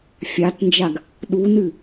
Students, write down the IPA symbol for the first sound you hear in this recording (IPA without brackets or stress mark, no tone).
fʲ